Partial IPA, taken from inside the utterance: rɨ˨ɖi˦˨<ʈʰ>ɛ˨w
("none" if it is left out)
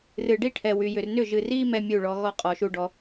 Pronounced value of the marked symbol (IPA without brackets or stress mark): ʈʰ